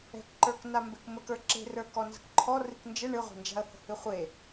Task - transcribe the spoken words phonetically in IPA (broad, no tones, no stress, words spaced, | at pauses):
ɛ̤kǃə˞k nambekmək ə˞ǁe̤rə˞ kɔnzə̤kǃʰɔ rɨknd͡ʒə ɳɨʁʷe̤nd͡ʒa̤ə̯hə̤ hɨχʷe